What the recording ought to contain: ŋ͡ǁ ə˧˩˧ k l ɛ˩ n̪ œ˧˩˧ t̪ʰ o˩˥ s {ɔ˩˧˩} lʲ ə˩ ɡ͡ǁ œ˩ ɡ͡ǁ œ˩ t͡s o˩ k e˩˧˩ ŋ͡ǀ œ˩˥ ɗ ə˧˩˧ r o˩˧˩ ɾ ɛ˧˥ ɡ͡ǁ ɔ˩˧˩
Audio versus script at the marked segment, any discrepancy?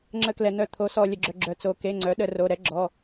yes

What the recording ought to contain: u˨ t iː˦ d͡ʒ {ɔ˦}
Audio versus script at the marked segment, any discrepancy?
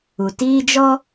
no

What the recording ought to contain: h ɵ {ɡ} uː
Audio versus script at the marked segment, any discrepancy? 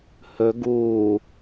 no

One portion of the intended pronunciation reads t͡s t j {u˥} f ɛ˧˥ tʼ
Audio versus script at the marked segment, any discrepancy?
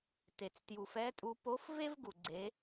yes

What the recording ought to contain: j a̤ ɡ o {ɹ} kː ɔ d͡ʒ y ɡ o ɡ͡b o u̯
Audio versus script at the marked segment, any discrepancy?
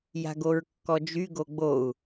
no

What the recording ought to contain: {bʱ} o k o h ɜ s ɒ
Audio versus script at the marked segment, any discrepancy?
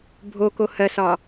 no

